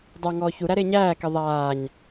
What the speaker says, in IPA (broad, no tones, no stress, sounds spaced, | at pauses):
dˤ a ŋ ɔː ç u ɾ æ ɾ e ɲ æː k e ðˤ aː ɲ